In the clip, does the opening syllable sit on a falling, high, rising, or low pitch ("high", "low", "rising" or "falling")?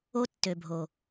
high